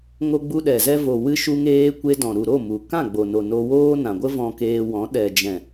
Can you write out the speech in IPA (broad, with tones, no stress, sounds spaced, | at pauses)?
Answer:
ŋ o˧ ɡ͡b u˧ ɗ ɛ˨ z ɛ˧ v o˨ w ɨ˧ ʃ u˧ ŋ eː˧ kʷ e˧ d ɔ̃˨ ɾ u˨ ɾ o˦˨ m u˨ k ã˦˨ ɡ͡b o˨ n o˨ n o˧ w oː˦ n ã˨ ɡʷ ə˦ v ɔ̃˧ k eː˧ w ɔ̃˨˦ ɗ ɛ˨ d͡ʒ ɛ̃˨